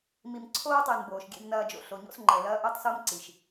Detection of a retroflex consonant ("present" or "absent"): absent